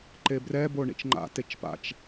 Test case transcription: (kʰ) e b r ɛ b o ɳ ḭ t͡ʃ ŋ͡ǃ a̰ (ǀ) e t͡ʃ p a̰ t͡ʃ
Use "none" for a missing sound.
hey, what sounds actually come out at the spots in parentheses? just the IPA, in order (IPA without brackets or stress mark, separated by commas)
ǃ, t